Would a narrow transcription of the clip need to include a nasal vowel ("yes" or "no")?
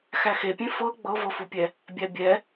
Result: yes